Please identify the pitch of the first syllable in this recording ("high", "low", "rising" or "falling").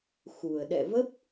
low